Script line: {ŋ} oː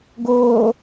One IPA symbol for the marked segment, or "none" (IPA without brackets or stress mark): ɡ